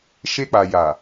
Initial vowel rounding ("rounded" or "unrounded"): unrounded